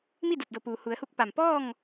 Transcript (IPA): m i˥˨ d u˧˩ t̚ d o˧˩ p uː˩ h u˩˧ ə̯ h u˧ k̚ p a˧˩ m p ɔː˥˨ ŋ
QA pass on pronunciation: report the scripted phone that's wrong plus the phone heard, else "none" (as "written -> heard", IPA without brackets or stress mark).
none